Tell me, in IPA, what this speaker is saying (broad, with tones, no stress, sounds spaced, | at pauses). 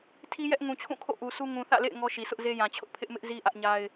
tʰ i˦ j ɛ˦ ʔ ŋ ũ˨ t͡ɕʰ ũ˦˨ kʰ o̰˦˨ ʔ u˨ s u˦ ŋ ũ˨ θ ä̰˦˨ l ḛ˦˨ ɪ̯ ŋ ɔ˦ ʃ i˨ s ʊ˦ ʔ z e˦ j ã˨ t͡ɕʰ ʊ˦ ʔ pʰ ɪ˦ ʔ m ɪ˦ ʔ z i˦ ʔ ä˦ ʔ ɲ a˦ ɪ̯